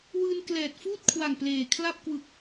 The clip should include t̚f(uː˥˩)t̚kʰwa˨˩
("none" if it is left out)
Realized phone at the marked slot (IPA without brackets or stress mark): uː˥˩